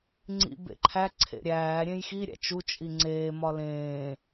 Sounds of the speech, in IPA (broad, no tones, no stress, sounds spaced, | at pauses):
ŋ͡ǀ ḭ b ḛ ǃʰ æ ǀʰ ḛ ɾʲ æː ɾʲ ẽ j x i ɾʲ æ̰ t͡ʃ u t͡ʃʼ i ŋ͡ǀ eː m ɒ l ẽː